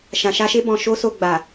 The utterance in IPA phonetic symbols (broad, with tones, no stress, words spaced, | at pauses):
ʃã˨ʃa˧ʃe˦ bɔ̃˧ ʃo˦so˧ ɡ͡ba˨